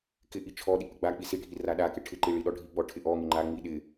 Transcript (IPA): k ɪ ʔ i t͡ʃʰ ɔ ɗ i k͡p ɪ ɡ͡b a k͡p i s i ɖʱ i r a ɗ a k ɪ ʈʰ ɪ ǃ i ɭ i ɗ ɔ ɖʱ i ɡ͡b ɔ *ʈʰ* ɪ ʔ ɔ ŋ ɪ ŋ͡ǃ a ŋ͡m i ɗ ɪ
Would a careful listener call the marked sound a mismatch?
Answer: no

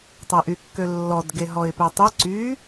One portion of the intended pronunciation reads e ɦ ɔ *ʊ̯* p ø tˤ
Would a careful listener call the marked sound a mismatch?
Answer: yes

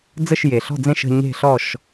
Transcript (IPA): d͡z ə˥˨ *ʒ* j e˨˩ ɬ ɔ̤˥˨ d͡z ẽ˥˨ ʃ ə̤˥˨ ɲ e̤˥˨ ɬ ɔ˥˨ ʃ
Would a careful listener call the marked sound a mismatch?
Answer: yes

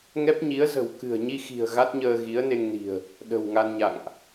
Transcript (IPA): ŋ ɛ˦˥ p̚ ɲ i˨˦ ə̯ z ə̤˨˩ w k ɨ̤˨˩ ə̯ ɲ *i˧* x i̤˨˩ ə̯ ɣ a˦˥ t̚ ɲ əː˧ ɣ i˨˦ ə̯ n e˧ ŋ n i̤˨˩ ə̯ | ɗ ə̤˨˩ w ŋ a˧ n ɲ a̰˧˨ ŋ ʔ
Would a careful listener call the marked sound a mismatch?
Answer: no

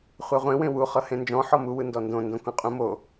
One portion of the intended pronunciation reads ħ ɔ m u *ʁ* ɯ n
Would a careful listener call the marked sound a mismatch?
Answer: yes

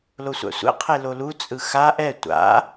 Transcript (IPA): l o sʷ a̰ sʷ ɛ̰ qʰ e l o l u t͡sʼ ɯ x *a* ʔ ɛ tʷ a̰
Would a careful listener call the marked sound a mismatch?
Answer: no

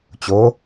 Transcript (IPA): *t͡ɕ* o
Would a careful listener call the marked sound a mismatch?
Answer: no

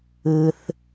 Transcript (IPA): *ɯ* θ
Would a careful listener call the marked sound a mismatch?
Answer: no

